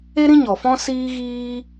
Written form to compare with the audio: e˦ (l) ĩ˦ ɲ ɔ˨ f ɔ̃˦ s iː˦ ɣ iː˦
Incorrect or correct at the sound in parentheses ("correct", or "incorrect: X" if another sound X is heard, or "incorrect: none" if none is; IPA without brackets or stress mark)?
incorrect: ɾ